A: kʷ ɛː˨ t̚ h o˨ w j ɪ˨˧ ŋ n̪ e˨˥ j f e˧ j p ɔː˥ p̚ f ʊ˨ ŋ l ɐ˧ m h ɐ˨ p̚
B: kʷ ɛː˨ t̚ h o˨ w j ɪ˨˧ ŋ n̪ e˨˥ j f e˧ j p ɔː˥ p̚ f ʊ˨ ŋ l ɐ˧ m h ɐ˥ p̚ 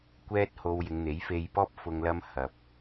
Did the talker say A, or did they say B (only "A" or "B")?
A